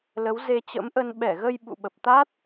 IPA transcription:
l ə˨˦ w z e˧ t͡ɕ ə̰˧˥ m ʔ ə˧ n ɓ ɛ˧˩ ɣ ə˧ j ɓ ṵ˧˨ ɓ ə˨˩ p̚ t̪ a˦˥ t̚

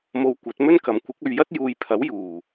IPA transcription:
m o˨˧ w kʷ ɐ˨˥ t̚ m ɵ˥ n k ɐ˨ m kʷ ɪ˨˥ k̚ ɵ˨ ɥ j ɐ˥ t̚ j uː˨ j pʰ ɐ˨˥ w j uː˨˩

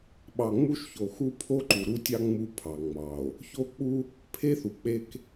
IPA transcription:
ɓ ɑ˨ ŋ͡m u˦ ʃ ç o˨ x u˦ pʰ o˦ ǃ u˨ ɾ u˦ tʲ ɑ˦ ŋ͡m u˦ pʰ ɑ˨ ŋ͡m ɑ˨ o̯ | ç o˦ k͡p u˦ | pʰ e˦ θ u˨ k͡p e˦ k

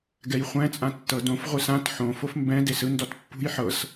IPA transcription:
ɡ ɛ j χʷ ɛ̃ t͡sʼ ã tː ɤ d õ f ʁʷ ɯ s ã t ħ õ f o f m b ɛ̃ d e s ɯ n d ɔ t pː ṳ j ħ ɤ s

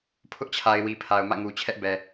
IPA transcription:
pʰ ʊ˦ ʔ t͡ɕʰ a˨ ɪ̯ w i˨ pʰ a˨ ʊ̯ m ä̰˦˨ ŋ u˨ t͡ɕʰ ɛ˦ ʔ b ɛ˨

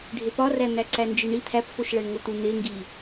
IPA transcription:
ɖʱ e p ɒ r æ n̪ æ ǀ æ n d͡ʒ i ɳ i t̪ʰ æ p f o ʃ ɭ æ ɳ ŋ o t̪ u n̪ e ŋ ɡ i

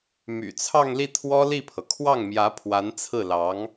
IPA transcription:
m y̰˨˩ t͡sʰ ɑ˥˧ ŋ l i˥˩ t̪ʰ w ɔ˥ l i˥˩ pʰ ɤ˩ kʰ w ɑ˥˩ ŋ m j ä˧˥ pʰ w a˧˥ n t͡sʰ ɹ̩˥˩ l ɑ˧˥ ŋ

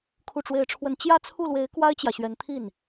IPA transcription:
kʰ u˥˧ ʈ͡ʂ w e˥˧ ɪ̯ ʈ͡ʂʰ w ə˥˧ n t͡ɕ j ä˥˧ t͡sʰ u˥˩ l w e˧˥ ɪ̯ k w a˥ ɪ̯ t͡ɕ j ä˨ ɕ ɥ ɛ˧˥ n t̪ʰ i˥˩ n

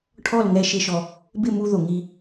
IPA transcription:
ʈʰ ɔ˦˨ l ŋ ɛ˧ ʃ ɪ˧ ʃ ɔ˧ | b ɪ˦˨ m u˧ ð o˨ ŋ i˧

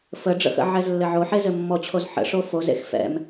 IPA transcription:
f ə ɖ͡ʐ ə̰ x ə̰ ʕ ɛ z lː ɘ ʕ o ħ e z ɘ mː ɔ t͡ɕʰ o z ħ ə̰ ʂ o f o z ḛ x f ɛ̰ m

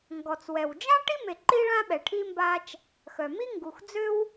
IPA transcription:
ŋ ɡ ɔ˩ t͡s w ɛ˩ w d͡ʒ ã˥ ʈ i˥ m e˨ ǃ i˦ ɭ ã˦ ɓ ɛ˨ ʈʰ i˥ m b a˥ t͡ʃ | x œ˩ m i˥ ŋ ɡ u˨ x d͡z ø˥ w

